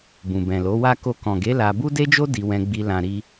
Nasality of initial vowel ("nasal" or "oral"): nasal